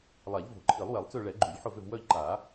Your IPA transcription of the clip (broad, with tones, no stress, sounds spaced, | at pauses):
lˠ a˨˩˦ ʎ v o̤˨˩˦ ǃʰ i˨˩˦ lˠ w ɛ˨˩˦ lˠ t͡s ø˦˨ ɭ ɛ˨˩˦ ɡ͡ǃ u˨˩˦ ʎ ħ ʊ˦˨ v ʏ˦˨ v w œ˦˨ ʎ ǃ a˨˩˦